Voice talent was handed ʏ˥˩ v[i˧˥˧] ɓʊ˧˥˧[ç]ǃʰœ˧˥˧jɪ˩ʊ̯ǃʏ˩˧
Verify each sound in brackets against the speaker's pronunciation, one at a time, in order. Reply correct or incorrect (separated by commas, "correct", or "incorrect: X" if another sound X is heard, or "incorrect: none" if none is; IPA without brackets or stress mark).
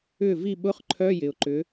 incorrect: i˥˩, incorrect: χ